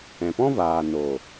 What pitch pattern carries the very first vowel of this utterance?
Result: low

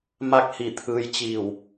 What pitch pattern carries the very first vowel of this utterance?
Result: falling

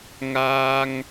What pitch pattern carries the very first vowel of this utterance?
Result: high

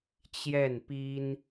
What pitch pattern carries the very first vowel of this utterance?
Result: falling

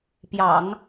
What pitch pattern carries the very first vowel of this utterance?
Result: low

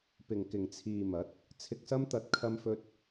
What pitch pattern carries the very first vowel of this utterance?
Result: low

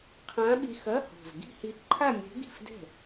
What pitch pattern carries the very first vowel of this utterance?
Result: rising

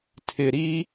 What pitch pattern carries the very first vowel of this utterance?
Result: low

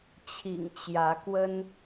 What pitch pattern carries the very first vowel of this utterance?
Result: low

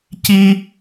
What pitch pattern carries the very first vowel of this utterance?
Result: high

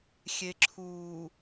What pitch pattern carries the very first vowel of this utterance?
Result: low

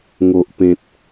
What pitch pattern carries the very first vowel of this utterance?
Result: low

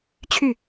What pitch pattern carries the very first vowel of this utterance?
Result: falling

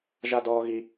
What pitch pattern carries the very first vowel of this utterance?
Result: high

